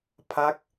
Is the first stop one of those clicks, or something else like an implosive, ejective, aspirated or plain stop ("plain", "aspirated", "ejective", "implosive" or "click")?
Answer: aspirated